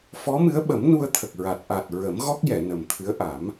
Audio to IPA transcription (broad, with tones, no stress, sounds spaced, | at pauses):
f ɔ˧˥ m ɨ˧˥ ə̯ ɓ ə˨˩˦ m n u˧ ə̯ t̪ʰ ə˨˩ k̚ ɹ a˨˩ t̚ ʔ aː˨˩ t̚ ɹ ə˨˩˦ m ɣ ɔ˦˥ k̚ j ɛ˨˩˨ n ə˨˩ m t̪ʰ ɨ˧˥ ə̯ ʔ a˨˩˦ m